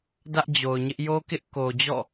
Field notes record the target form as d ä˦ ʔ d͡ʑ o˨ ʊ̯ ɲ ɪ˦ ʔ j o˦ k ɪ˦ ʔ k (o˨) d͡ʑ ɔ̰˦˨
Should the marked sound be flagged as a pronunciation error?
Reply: no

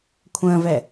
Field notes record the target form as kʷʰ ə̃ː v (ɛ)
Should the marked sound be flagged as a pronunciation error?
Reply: no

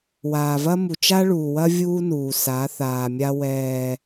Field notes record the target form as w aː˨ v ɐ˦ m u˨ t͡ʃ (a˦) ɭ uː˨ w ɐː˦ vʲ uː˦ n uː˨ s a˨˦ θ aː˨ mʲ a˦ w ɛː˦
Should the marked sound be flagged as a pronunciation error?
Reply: no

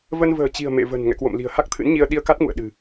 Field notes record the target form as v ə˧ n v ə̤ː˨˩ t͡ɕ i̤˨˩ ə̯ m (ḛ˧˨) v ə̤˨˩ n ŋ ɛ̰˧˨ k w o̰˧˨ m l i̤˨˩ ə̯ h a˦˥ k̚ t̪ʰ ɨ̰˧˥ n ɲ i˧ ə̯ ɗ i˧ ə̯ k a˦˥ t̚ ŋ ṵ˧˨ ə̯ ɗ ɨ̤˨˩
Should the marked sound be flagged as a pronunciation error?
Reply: no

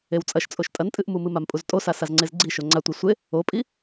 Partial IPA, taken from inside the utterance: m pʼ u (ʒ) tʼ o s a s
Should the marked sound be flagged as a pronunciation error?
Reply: yes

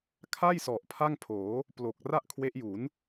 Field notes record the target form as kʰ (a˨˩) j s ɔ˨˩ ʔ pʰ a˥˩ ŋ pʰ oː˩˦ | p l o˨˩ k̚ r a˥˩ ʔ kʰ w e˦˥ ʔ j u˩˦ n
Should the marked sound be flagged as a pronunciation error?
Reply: yes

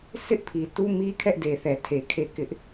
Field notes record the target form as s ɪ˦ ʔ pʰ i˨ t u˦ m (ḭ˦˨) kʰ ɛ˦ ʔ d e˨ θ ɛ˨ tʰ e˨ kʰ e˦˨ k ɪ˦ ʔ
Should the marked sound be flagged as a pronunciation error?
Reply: yes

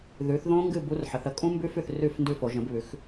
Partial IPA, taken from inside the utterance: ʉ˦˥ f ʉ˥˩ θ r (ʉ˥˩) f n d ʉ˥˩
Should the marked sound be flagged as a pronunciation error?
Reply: no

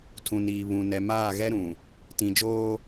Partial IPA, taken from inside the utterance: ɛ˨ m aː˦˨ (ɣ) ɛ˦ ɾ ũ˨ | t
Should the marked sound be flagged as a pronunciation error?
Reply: no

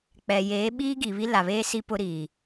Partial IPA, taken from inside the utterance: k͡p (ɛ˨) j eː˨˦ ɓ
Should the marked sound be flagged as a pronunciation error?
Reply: no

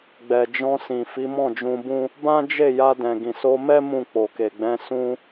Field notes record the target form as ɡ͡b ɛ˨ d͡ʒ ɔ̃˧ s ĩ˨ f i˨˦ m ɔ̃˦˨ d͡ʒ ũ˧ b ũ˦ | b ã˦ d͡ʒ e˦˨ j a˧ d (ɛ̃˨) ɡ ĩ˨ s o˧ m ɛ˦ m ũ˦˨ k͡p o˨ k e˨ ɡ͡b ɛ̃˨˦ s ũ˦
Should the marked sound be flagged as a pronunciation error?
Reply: no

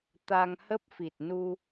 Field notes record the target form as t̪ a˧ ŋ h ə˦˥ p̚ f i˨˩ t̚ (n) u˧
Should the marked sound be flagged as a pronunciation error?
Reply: no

